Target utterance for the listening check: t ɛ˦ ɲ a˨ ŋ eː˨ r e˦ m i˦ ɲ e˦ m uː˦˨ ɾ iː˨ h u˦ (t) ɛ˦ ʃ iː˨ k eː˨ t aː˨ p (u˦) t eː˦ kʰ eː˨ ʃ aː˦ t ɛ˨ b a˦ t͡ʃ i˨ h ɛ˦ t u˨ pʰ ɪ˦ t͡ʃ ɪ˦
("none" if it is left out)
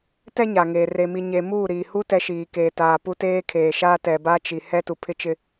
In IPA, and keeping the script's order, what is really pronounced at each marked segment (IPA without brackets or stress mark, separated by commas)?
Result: t, u˦